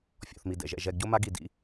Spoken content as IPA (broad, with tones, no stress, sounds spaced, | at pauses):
fʲ ɔ̰˧ θ m i˧ d ɛ̰˩ ʒ ɛ̰˧ ʒ ɛ˧ ɡ ɟ o˥ m a˥ ɡ i˧ d ḭ˥